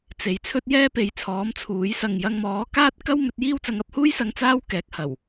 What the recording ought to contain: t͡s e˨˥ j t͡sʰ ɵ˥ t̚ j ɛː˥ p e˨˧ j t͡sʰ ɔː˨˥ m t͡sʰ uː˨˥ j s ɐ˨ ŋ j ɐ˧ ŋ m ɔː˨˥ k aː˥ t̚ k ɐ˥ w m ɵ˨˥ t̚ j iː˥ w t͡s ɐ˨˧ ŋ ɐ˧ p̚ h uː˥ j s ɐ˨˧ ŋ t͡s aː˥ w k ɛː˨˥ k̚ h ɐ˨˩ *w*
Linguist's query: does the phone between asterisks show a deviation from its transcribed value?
no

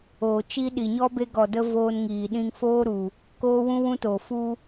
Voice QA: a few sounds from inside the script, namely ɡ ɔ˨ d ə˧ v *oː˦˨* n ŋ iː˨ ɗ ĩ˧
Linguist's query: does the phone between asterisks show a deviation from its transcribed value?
yes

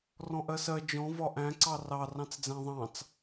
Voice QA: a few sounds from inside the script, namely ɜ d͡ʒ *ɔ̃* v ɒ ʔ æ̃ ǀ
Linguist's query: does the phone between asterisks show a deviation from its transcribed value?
no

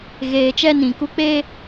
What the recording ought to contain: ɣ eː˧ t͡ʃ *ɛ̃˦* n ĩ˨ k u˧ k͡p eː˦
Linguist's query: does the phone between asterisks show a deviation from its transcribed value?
yes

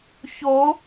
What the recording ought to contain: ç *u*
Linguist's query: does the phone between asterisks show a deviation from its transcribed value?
yes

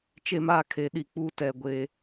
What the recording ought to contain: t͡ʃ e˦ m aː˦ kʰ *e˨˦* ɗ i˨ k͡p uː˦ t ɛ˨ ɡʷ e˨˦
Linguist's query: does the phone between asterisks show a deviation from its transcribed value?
no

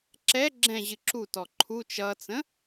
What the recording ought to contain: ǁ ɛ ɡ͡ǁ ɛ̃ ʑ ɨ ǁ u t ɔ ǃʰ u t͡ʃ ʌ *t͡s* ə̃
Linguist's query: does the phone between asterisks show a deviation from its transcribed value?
no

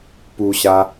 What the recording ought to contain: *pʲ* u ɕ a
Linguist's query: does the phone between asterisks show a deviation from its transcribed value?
yes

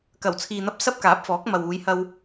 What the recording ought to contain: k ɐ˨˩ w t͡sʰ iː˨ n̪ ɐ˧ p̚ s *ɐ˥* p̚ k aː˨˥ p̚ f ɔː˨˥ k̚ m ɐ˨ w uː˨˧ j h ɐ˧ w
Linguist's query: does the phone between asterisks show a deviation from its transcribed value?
no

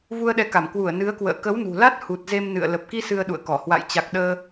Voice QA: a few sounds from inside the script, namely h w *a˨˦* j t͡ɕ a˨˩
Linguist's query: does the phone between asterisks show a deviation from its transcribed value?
yes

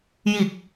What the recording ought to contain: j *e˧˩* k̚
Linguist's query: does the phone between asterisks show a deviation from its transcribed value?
yes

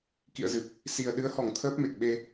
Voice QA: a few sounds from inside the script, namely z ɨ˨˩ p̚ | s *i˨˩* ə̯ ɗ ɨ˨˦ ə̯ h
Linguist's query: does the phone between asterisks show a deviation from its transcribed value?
no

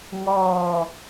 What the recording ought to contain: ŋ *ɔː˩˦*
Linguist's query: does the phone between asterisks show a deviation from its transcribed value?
yes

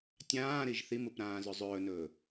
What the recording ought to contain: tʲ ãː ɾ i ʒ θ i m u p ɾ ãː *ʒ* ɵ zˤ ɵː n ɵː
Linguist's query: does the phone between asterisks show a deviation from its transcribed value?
yes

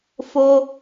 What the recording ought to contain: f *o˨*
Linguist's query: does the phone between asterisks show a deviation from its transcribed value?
yes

